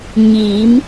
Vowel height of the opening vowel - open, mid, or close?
close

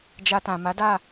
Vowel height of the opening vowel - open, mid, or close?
open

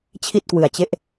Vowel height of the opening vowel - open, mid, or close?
close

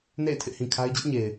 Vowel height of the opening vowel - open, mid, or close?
mid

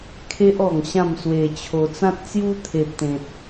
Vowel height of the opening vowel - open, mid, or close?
mid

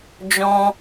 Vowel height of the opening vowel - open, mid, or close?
mid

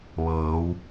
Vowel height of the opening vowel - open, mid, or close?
mid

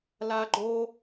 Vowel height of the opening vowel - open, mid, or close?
open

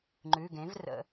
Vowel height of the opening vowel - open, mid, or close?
close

